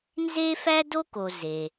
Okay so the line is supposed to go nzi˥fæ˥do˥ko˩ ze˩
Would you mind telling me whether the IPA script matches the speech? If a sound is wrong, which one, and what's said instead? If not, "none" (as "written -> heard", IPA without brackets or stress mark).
i˥ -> e˥